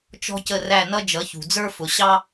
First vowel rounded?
yes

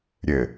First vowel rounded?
no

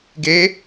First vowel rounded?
no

